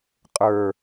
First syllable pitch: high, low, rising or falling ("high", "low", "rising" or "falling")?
low